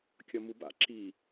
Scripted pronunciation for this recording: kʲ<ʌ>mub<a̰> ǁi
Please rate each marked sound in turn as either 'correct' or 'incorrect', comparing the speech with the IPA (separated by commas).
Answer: correct, correct